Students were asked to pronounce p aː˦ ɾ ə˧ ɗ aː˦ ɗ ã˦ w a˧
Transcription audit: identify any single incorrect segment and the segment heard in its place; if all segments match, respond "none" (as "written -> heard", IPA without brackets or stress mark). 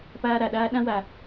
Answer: ə˧ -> a˧